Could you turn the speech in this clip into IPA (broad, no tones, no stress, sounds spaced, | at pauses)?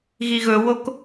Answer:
ɣ i ɣ ɵ w o k